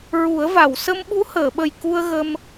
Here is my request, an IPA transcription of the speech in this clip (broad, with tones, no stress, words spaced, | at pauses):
ɹu˨˩˦ə̯va˨˩˨w sə˧mɓu˧˥həː˨˩˨ɓə˨˩j ku˧ə̯ ɣə˧m